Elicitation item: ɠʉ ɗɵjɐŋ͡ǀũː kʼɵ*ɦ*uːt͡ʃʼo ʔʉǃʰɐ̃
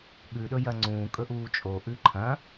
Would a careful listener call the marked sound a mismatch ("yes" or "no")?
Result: yes